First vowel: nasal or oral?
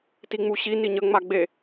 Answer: oral